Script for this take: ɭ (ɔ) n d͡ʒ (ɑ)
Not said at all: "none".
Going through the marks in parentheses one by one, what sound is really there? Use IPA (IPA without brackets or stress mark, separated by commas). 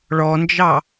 ɔ, ɑ